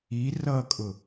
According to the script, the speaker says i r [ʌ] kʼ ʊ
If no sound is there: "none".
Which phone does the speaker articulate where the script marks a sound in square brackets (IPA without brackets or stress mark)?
ʌ